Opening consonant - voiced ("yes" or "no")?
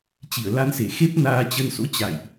no